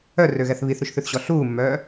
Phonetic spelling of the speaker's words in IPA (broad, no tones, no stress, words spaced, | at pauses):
œrøɣɛθ βiθɾʉʃθʉθɕɔ ɬuːmːœː